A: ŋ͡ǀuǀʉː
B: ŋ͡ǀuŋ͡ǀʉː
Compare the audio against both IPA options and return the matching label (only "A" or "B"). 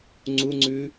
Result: B